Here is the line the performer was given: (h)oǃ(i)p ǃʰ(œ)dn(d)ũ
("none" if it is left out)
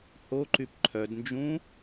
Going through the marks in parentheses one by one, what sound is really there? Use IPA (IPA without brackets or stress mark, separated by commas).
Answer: h, y, œ, d͡ʒ